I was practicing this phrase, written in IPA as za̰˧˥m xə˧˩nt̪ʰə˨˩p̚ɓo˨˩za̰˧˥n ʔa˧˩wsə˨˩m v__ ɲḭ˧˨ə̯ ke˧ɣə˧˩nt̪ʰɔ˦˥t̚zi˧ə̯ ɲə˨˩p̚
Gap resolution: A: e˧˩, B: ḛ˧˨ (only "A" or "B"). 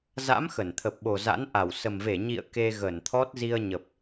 A